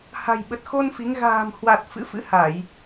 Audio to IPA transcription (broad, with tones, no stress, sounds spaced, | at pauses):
h a̤˨˩ j ɓ ə˨˩ t̚ x o˧ n f i˨˦ ŋ ɣ a̤ː˨˩ m h w a˨˩ t̚ f ɨ̰˧˥ f ɨ̰˧˥ h a˧˩˨ j